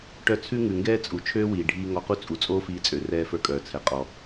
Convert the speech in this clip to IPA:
ʈœ˧t͡sʰʉ˥ŋʉ˩ŋɡɛː˥ t͡sʼu˩t͡ʃʰøː˥wiː˩ ɖʱiː˧ŋɔ˧qu˥ t͡sʼu˩t͡sʼoː˥fiː˧t͡sʼø˩ rɛː˧fə˞˧kʼœː˩t͡sʰɛ˩ qʼɔ˩

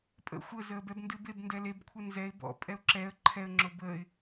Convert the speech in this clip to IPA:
pʼə̰ xʷəzəːbɛb ndɨbeb ndɛlebkʷʰɨ nzɛɪ̯ bɔ̰pʼɛʊ̯ ǁɛə̯ ǃʰɛə̯ŋ͡ǁo bəːɪ̯

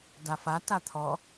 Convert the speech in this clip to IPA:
dafa tat̪ʰɔ

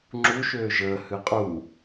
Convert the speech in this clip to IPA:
ŋ͡ǁu ʃøːʒəː hɨqʼu

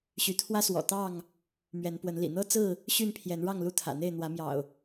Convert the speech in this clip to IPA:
ɕy˨˦t̪ʰwä˦swɔ̰˨˩ t̪ɑ˥˨ŋ | mɥɛ˨˦npwə˨˦nlḭ˨˩ n̪ɤ˦t͡sɹ̩˥˨ | ɕy˥˨npʰjɛ˨˦n ɻɑ˥˨ŋlu˥˨t̪ʰä̰˨˩n̪e˥˨ɪ̯ n̪wä˨˦mjɑ̰˨˩ʊ̯

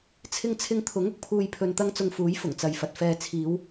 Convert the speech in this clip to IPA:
t͡sʰɪ˧ŋt͡sʰɪ˧ŋt̪ʰʊ˨˥ŋ ʊ˨k̚pʰuː˨jpʰɵ˨n t̪ɐ˥ŋt͡sʊ˧ŋfuː˨˥j fʊ˨˩ŋt͡sɐ˨jfɐ˨t̚ fɛː˨ t͡sʰiː˨˧w

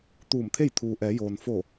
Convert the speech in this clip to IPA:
t̪uː˧˩mt̪ʰe˥˨j t̪ʰuː˩ʔɛː˩˧joː˩n fo˧˩

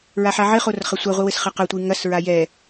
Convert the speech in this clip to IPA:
ɹaħaʕɘχor χɐsʷɐ ʁʷɨwɘsχɐqɐ tʷɨŋɐsɹa jɛ

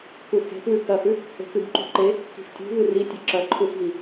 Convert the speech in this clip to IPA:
kuxe̤pwʉ kɐhʉ | e̤kɨbǃṳ ǃe | ki̤ftʲṳ βɨritʲʉ ǁɐǃʰufɣi

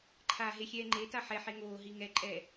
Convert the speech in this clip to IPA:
ǃʰaːɦexʲɛːŋ͡ǃe taħɛ ħeŋoː ɦiŋɛ ǃʼɛ

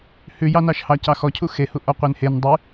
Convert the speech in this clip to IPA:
hʉjɑnɑʃhɑ cɑxɔcʰu xehu ʔɔqʷenhen dˤy

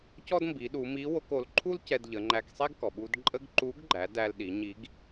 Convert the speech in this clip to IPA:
cɔ˥dmbi˩˧ɗu˩˧mi˧˥ wo˧ko˩˧l ǃʰu˥l cɛ˧dʎə˩˧ŋ͡ǃæ˧k sˤɛ˥ɡkɔ˩ɓu˧d ǃʼə˥ɡ ǃu˧˥ɡɡ͡ǃæ˩˧d æ˧lɗi˩˧ɲi˧˥ɡ

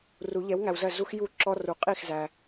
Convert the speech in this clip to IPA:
ru˨˩˦ ʎɛ˩˥wŋæ˨wzɜ˥˩ zu˦x ju˥˩ǁɔ˦ru˩˥ qʼi˥˩xzæ˨

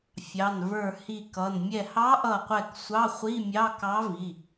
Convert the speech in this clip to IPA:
fʲɑ˩˧˩nvə˞˧˩ hi˧˩kʌ˩˧˩n mʲɛ˧˩hɑ˧˥ʔʌ˧˩qʷɛ˧˩k sʷɑ˧˥˧χʷi˧˥˧mʲɑ˧˥˧ kɑ˧˥vi˩˧˩

